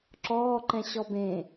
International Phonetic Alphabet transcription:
ǁɔːǃɛ̃ɕɔ bẽ

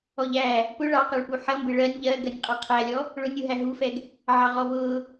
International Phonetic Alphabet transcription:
ɔʎæ | pʊ ɭɑqɑɭpu ħʌmbɪ ɭɜnʲ ʎɜ ɡɜnʲqʼɑqʰælʲɔ | ɭʊnʲuɦæ ɦufɛɡ | ʕɑʁɔvʊː

